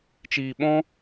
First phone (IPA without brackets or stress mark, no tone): t͡ʃ